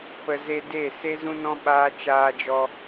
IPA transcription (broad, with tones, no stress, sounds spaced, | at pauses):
p ə˨ z e˧ d e˦˨ s e˦ z ũ˦ n ɔ̃˦ ɓ aː˦ t͡ʃ aː˧ d͡ʒ ɔ˧